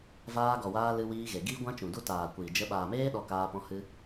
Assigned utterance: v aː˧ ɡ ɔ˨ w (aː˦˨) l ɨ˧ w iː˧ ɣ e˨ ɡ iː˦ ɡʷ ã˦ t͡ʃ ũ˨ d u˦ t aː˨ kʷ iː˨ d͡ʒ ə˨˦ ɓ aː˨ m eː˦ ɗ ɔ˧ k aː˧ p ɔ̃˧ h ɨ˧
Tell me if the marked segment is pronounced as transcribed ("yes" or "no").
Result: no